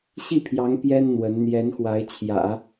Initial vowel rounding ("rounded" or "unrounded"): unrounded